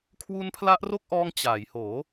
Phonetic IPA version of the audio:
kʰ w uː˦˥ n pʰ l a˦˥ ʔ r o˥˩ k̚ ʔ ɔː˧ ŋ t͡ɕ aː˩˦ j h oː˩˦

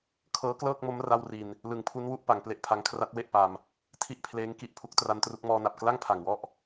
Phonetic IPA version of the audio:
kʰ ɤː˦˥ k l ɤː˥˩ k̚ m o˦˥ m r a˥˩ w r i˧ n | l ɯ˩˦ ŋ pʰ u˦˥ n w u˦˥ ʔ p a˩˦ ŋ p l e˦˥ ʔ pʰ a˦˥ ŋ kʰ r a˦˥ t̚ w e˥˩ ʔ p a˧ m | tʰ i˥˩ ʔ pʰ l eː˦˥ ŋ k i˦˥ ʔ pʰ u˦˥ k̚ t r a˦˥ n t r u˦˥ k̚ m ɔː˧ n a˨˩ p̚ k l a˥˩ ŋ pʰ a˨˩ ŋ w ɔ˥˩ ʔ

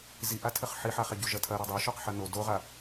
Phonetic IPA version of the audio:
z i ʔ a tʰ ɘ χ ħ i ħ a χ e ɟ u ʒ ɐ tʰ ɐ ɾ ɔ dˤ o ʃ ɔ q ħ ɐ n o d o ʁ a

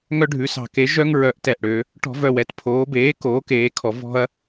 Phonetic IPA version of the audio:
ŋ œ˦ ɖʱ ʉ˩˧ s ɑ̤˧˩˧ k e˩˥ ʒ œ˦ ŋ ɹ œ˩˥ ʔ t ɛ˨˩ ʔ ɽ ø˩˧ | ʈ ɔ̤˧˩˧ v œ˨˩ w ɛ˩˧ t pʰ oː˩˧ b eː˩˥ k oː˩˥ k eː˩˧ kʰ ɔ˩˧ v ɔ̤˦ ɐ̯

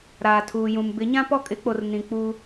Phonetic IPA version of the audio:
ɾ aː˨ tʰ uː˨ j ũ˨ m b ɪ˨˦ ɲ ã˦ p ɔ˦ kʼ ɪ˨˦ k͡p o˨ r n ĩ˨ k͡p uː˦

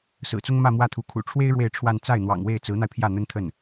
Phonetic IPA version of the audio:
s ɹ̩˨˩ t͡s ʊ˥ ŋ m ä˥˧ m w ä˥˩ t̪ʰ u˧˥ kʰ ṵ˨˩ ʈ͡ʂʰ w e˥ ɪ̯ ɻ w e˥˧ ɪ̯ ʈ͡ʂʰ w a˥˧ n t͡s a˥˩ ɪ̯ n̪ w ɑ̰˨˩ ŋ w e˥˩ ɪ̯ t͡s ɹ̩˧˥ n̪ a˧ ɪ̯ pʰ j ä˥˩ n̪ ə˥ n t̪ʰ ə˥˩ n

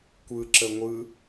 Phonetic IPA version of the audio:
kʷ ɯ ǁ ə ŋʷ ɯ

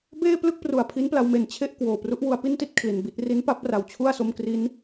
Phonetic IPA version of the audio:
b eː˥˩ p l ɯ˥˩ k̚ p r u˨˩ a̯ pʰ i˦˥ n p l a˧ w m e˩˦ n t͡ɕʰ e˥˩ ʔ k w oː˨˩ p r u˦˥ ʔ w u˧ a̯ p i˥˩ n t i˥˩ t̚ kʰ l i˨˩ n b i˥˩ t̚ r i˦˥ n p a˦˥ p̚ r a˨˩ w t͡ɕʰ u˥˩ a̯ s o˦˥ m k r i˦˥ n

